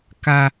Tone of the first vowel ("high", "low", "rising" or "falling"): high